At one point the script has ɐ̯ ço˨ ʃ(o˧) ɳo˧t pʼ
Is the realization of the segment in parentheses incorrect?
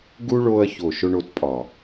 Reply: no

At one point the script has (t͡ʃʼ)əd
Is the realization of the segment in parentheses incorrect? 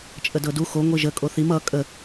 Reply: no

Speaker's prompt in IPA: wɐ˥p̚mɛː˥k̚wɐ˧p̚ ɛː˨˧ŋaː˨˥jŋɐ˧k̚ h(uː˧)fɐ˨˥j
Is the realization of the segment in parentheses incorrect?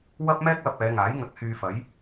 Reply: yes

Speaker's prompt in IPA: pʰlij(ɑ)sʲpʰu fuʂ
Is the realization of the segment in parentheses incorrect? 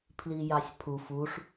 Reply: no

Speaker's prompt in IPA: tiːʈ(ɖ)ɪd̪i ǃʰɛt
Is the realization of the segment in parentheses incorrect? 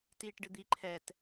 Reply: no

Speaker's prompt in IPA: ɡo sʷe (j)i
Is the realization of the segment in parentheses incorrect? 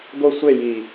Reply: no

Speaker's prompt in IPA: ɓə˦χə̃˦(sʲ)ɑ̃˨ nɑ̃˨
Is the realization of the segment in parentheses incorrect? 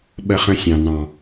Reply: no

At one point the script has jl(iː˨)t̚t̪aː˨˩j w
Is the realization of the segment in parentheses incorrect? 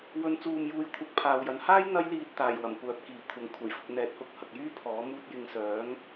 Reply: yes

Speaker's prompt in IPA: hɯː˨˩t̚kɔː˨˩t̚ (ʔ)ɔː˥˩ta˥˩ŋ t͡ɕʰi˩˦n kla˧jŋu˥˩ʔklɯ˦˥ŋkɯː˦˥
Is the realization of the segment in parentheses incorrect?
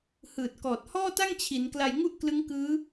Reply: yes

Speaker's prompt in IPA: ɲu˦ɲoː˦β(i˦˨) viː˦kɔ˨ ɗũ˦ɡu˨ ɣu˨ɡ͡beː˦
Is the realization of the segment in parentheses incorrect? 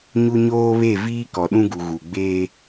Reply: yes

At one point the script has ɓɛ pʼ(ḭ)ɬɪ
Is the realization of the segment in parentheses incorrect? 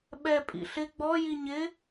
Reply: no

